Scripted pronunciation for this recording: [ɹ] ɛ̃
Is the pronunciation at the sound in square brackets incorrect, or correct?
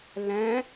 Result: incorrect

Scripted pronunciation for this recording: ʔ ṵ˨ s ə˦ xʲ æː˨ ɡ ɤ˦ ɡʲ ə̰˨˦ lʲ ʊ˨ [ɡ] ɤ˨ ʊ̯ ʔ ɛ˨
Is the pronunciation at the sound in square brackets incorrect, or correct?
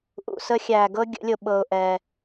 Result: incorrect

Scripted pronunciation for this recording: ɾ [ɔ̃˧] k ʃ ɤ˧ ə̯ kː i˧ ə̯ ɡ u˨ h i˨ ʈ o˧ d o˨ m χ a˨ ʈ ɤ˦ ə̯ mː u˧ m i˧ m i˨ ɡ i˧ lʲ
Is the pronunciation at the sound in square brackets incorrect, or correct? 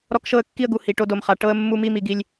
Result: incorrect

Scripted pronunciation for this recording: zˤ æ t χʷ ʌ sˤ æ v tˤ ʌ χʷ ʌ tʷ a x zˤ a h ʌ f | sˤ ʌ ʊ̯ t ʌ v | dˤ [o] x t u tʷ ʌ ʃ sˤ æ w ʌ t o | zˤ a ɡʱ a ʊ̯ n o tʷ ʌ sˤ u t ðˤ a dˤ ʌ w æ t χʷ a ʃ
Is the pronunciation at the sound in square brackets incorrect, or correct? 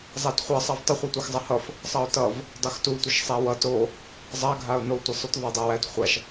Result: correct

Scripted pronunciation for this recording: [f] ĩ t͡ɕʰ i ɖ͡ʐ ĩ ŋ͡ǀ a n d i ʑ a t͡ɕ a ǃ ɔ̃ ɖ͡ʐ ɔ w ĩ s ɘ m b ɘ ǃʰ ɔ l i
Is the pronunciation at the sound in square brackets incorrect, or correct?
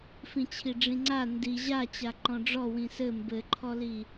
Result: correct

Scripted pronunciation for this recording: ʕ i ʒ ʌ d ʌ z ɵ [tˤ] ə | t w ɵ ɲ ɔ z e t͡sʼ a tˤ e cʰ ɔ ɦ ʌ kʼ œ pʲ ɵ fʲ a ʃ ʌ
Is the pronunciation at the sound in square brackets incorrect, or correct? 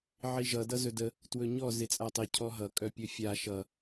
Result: incorrect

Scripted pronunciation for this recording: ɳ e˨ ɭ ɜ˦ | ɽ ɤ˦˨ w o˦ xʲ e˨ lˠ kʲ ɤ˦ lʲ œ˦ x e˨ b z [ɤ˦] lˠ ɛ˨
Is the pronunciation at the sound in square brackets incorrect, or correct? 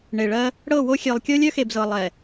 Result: incorrect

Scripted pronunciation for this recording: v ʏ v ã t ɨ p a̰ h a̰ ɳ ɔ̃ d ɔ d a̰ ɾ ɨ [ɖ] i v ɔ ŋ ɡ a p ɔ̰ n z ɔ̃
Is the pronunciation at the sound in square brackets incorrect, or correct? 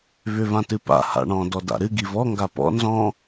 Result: incorrect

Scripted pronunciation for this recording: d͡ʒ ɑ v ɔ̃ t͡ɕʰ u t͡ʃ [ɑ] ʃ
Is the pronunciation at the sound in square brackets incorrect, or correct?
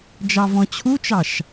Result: correct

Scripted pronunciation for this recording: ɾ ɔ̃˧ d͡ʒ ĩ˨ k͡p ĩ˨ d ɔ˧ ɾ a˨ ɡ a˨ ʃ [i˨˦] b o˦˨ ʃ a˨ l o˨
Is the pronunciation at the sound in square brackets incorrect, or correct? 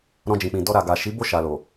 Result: correct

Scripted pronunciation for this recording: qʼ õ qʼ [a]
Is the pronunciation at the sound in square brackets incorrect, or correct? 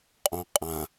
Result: incorrect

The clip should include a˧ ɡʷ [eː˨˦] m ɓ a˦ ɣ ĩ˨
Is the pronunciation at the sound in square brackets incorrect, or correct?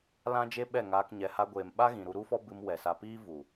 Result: incorrect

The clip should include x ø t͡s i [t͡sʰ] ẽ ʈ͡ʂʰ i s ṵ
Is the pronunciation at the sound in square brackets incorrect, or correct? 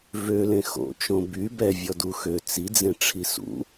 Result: incorrect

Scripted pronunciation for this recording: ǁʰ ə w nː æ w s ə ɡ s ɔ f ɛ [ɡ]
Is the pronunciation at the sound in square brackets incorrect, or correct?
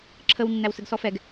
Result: correct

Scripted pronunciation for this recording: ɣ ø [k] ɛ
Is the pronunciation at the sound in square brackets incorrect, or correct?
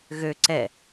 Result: incorrect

